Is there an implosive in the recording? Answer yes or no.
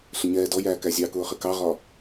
no